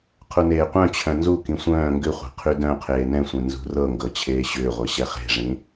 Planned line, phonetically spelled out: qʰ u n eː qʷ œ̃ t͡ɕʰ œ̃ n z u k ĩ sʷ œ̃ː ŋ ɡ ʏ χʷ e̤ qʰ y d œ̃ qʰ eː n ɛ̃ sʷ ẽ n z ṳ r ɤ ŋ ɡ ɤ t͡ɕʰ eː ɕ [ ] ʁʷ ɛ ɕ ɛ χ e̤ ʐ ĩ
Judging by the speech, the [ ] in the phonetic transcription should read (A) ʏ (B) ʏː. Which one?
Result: B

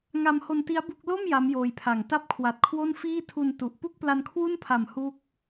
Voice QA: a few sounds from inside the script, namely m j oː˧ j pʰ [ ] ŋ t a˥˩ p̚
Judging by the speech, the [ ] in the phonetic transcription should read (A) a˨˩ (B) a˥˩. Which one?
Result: A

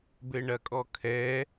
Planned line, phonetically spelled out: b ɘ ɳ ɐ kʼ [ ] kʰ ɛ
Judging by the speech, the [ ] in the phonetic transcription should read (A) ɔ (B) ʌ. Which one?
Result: A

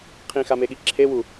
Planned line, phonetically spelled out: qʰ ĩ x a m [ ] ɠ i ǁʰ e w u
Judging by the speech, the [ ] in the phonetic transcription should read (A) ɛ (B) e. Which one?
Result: B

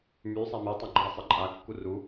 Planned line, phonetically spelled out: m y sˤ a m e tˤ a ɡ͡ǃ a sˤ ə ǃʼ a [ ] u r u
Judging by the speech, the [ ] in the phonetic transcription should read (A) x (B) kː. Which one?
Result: B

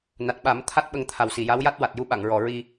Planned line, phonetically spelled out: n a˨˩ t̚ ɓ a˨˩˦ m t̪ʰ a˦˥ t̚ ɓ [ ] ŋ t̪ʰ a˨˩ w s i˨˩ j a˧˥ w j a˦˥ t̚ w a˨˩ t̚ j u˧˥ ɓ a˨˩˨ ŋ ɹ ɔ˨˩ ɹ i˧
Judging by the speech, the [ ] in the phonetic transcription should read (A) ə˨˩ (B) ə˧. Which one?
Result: B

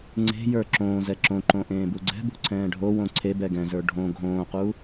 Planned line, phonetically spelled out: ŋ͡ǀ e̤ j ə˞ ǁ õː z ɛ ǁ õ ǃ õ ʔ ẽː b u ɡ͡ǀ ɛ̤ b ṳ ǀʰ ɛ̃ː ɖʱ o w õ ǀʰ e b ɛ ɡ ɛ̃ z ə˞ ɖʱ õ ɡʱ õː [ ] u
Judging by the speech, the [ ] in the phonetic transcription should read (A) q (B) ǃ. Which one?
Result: A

